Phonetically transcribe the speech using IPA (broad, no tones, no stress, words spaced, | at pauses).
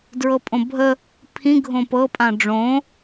dɹɤpʼõbʱə | pʰĩ ɡʱõpɤ pʼãɖ͡ʐõ